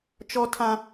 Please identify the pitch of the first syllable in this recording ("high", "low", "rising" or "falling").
high